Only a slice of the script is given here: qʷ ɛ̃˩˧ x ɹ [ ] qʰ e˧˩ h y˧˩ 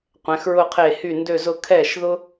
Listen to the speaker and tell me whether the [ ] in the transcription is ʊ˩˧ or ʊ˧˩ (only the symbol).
ʊ˧˩